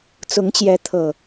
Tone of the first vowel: rising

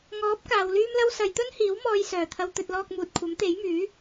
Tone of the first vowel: rising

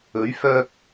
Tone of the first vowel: rising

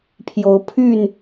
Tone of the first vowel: rising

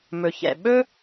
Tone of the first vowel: low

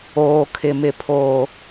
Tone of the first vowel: low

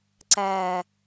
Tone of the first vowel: falling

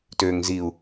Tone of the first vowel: low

